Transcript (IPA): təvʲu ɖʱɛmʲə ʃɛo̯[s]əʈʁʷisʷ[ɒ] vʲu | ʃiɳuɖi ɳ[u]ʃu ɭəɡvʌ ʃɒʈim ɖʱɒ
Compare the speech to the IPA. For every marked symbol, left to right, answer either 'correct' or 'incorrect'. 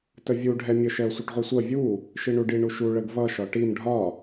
incorrect: sʷ, incorrect: ʌ, correct

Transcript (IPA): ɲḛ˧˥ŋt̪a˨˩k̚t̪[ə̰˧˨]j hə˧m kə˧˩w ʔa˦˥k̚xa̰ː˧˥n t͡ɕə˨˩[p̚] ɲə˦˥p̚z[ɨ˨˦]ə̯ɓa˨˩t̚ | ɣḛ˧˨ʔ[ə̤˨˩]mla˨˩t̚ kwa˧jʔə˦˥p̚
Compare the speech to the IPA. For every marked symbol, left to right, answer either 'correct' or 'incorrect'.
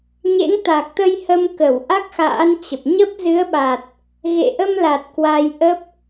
incorrect: ə˧, correct, correct, incorrect: ə˧

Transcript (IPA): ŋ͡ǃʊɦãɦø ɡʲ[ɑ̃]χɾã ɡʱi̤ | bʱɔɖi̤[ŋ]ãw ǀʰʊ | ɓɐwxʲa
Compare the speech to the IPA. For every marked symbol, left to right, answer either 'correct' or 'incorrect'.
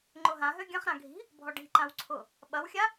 incorrect: ɐ̃, incorrect: ǃ

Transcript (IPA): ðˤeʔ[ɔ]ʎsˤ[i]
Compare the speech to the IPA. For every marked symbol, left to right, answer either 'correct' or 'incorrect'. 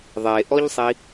correct, correct

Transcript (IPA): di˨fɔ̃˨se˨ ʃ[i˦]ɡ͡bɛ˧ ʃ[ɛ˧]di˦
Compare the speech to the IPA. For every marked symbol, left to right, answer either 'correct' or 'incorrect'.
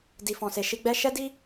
incorrect: i˧, incorrect: ɛ˦

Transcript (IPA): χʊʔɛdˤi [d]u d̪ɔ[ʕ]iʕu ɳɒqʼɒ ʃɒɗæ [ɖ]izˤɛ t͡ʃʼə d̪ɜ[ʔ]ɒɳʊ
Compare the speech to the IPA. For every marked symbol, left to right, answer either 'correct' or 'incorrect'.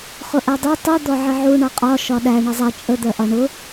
incorrect: tˤ, correct, incorrect: ɳ, correct

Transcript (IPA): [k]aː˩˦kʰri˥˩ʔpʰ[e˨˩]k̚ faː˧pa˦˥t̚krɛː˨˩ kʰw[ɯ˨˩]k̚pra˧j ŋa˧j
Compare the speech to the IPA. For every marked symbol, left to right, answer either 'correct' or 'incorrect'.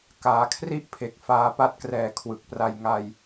correct, correct, correct

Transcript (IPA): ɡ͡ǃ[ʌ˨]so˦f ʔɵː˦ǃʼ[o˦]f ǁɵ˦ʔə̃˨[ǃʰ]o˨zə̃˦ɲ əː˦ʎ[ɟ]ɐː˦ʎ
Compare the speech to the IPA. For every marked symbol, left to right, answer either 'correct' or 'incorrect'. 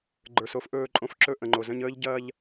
incorrect: ə˞˨, incorrect: õ˦, incorrect: ŋ͡ǃ, correct

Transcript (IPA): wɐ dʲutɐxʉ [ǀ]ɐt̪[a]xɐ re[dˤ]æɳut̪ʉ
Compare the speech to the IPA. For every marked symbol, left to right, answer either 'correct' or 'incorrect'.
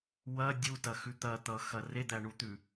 incorrect: t̪, incorrect: ʌ, incorrect: d̪

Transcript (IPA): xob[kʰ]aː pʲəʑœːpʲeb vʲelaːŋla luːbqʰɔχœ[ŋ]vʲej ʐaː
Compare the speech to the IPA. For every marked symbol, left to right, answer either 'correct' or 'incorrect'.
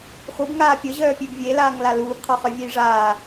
incorrect: ŋ, incorrect: none

